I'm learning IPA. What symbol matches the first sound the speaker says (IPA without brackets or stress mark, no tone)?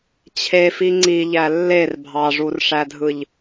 t͡ɕʰ